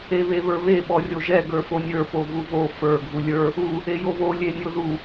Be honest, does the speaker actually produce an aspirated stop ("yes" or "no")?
no